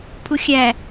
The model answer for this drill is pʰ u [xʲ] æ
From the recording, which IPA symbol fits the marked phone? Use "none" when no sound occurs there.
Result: xʲ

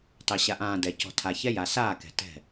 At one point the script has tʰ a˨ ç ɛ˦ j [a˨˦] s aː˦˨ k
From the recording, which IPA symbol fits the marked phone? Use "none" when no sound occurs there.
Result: a˨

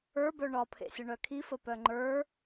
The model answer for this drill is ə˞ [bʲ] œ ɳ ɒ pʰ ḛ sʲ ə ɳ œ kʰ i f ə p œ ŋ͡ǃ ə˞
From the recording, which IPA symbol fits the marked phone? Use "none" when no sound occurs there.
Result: b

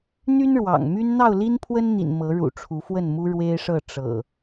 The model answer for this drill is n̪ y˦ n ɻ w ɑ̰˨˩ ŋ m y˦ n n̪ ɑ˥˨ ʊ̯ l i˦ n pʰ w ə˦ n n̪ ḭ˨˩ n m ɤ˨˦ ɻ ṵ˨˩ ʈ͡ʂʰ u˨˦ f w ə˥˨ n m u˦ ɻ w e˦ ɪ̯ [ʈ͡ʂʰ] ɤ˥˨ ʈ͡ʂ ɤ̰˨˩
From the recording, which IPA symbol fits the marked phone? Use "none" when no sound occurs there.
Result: ʂ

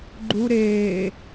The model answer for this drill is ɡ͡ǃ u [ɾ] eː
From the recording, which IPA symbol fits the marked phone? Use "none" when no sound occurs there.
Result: ɾ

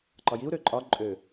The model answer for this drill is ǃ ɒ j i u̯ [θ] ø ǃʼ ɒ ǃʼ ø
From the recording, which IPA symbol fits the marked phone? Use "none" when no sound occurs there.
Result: ɾ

